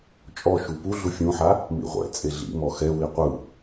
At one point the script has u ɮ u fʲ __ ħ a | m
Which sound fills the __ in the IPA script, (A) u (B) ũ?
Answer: B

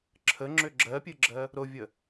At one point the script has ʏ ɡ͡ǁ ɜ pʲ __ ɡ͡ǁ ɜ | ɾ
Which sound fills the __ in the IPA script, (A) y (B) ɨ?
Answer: B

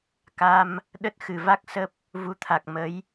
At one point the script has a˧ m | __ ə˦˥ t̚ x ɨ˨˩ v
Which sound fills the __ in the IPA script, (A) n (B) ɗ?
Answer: B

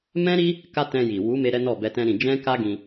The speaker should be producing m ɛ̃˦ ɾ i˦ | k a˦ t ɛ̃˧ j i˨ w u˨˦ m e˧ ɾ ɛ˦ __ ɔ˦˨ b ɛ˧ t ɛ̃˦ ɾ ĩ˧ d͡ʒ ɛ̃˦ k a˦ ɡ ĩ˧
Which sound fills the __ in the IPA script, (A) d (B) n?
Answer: B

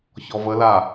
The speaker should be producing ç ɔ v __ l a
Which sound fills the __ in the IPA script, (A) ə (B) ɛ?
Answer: A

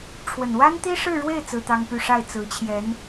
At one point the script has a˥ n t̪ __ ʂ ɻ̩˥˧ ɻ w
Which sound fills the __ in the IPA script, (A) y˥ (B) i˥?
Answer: B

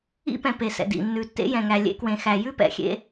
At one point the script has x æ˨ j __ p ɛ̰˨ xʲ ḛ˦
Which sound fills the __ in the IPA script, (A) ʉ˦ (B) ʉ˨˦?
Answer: A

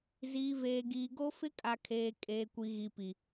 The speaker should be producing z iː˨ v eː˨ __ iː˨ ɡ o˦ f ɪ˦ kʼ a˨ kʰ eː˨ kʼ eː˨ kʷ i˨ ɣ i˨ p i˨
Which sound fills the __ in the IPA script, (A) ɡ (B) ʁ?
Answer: A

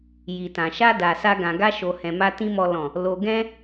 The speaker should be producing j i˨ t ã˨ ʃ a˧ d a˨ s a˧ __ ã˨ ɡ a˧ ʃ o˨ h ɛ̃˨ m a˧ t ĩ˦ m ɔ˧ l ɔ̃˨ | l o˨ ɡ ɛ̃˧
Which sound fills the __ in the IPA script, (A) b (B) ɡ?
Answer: B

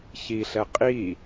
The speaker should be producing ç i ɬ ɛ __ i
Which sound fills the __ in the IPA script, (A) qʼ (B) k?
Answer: A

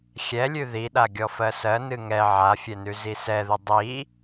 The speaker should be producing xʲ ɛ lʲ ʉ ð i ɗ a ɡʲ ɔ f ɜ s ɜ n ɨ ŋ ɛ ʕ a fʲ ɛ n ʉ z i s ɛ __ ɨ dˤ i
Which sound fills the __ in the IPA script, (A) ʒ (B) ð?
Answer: B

